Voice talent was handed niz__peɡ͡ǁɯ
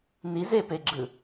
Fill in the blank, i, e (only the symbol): e